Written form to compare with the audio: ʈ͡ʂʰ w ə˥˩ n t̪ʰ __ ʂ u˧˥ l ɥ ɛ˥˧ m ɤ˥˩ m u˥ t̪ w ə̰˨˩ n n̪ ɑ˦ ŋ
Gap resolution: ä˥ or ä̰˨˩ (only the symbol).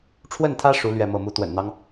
ä˥